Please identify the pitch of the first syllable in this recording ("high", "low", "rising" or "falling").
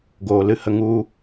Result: low